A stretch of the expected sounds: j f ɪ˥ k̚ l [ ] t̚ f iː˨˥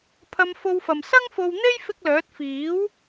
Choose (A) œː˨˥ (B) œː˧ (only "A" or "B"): A